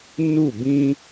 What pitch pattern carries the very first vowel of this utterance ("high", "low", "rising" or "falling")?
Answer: falling